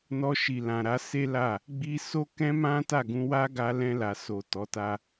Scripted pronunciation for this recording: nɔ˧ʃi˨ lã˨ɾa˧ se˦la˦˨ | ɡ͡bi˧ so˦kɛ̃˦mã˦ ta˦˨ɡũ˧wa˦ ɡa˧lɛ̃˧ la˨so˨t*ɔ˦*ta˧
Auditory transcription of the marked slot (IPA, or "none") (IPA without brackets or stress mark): ɔ˨˦